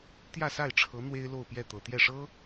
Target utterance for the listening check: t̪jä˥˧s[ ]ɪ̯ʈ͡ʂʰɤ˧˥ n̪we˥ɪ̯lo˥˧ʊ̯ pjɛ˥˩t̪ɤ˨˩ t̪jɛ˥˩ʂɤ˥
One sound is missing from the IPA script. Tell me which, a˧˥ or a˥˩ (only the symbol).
a˥˩